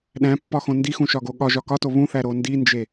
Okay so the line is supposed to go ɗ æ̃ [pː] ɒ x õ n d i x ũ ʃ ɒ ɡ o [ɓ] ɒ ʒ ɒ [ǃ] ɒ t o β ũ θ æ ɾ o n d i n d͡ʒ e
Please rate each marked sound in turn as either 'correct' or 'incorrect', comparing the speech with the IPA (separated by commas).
correct, incorrect, incorrect